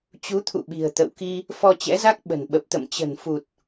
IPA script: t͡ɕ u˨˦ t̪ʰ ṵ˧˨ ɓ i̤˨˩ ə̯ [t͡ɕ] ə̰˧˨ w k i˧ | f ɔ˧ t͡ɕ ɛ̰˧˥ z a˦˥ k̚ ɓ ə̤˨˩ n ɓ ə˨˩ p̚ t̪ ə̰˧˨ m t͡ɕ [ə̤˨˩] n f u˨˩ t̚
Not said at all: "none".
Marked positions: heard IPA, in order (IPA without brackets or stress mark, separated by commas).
t̪, ə̤˨˩